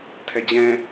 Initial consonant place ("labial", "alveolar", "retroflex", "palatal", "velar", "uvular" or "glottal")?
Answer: alveolar